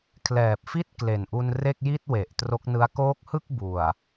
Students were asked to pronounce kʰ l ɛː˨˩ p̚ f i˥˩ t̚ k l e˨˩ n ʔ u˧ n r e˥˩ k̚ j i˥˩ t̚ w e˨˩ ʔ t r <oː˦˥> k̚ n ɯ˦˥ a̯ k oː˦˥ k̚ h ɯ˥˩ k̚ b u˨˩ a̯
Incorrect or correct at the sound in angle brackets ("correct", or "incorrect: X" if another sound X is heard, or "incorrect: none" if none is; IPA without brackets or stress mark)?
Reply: incorrect: o˦˥